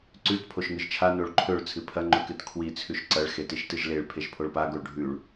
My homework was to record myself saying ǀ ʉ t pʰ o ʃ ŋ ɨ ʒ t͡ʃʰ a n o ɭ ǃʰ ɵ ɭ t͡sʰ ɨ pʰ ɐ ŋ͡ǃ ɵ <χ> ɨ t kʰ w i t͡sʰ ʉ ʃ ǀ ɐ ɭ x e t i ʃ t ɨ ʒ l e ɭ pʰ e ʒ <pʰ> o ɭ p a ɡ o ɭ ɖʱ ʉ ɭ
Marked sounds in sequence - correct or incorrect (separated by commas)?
incorrect, correct